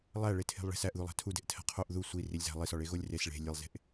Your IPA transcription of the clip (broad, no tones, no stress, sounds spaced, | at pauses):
lˠ æ ɭ e tʰ e̤ lˠ ɭ e̤ s æ ʔ ð u lˠ æ̤ tʰ u d e̤ ʔ tʰ æ̤ qʰ o ʔ ð u sʷ i r i lʲ z æ̤ lˠ i s ɒ ɭ e ɣ o lʲ r e s ɭ e̤ lʲ e lˠ z e̤ ʔ